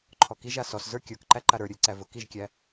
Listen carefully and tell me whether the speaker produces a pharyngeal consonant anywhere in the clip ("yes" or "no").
no